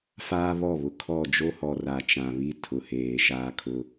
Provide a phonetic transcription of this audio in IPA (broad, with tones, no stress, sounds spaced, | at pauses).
f aː˦ β ɔ˦˨ β ʊ˨ kʰ ɔ˦˨ d͡ʒ o˦ h ɔ˨ r a˨ t͡ʃ ã˨ β i˦ tʰ ʊ˨ h eː˨ ʃ aː˦ kʰ ʊ˦